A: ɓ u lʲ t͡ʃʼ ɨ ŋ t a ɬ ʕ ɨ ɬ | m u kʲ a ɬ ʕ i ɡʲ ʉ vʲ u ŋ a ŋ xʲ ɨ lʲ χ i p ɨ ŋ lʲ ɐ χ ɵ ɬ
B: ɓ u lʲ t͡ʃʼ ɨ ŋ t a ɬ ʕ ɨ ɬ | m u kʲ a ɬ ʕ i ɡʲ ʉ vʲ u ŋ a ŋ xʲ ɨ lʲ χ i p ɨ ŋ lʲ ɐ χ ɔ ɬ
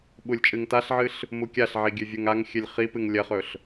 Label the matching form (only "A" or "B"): A